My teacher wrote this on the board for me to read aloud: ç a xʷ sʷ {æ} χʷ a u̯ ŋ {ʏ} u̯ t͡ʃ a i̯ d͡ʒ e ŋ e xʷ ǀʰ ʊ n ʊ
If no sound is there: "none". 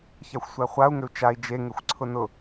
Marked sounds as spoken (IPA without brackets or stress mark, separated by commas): æ, ʏ